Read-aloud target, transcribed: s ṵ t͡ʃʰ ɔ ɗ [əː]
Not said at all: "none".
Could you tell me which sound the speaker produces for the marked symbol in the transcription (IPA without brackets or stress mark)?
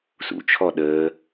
əː